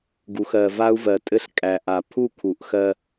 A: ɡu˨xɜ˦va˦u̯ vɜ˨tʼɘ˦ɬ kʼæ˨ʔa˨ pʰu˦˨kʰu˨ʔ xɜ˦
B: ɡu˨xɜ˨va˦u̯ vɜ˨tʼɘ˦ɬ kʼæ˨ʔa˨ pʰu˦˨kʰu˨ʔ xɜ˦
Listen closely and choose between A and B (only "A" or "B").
B